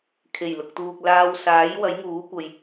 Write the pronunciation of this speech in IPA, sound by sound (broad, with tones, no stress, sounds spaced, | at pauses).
kʰ e˨˩ j l ʊ˨ k̚ t̪ uː˨ k̚ l aː˧ w s aː˨˥ j w ɐ˨˥ j ŋ uː˨˥ kʷ ɐ˨ j